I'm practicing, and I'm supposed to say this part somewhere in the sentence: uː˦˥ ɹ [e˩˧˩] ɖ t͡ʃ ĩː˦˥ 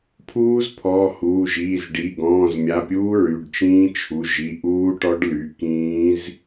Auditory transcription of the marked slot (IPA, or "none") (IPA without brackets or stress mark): y˩˧˩